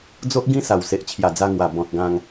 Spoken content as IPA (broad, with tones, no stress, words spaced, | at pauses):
d͡zo˦ʔɡĩ˦sa˨˩w se˨ʔt͡ɕʰja˨˩d͡za˧ŋwa˨˩ bɔ̃˨t̚ ɡã˧ŋ